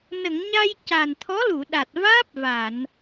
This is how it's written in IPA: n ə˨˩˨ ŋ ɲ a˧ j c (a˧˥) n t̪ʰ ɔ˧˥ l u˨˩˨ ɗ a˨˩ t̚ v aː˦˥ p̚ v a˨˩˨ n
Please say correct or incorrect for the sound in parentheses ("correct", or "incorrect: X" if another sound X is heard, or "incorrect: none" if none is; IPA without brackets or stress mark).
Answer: incorrect: a˨˩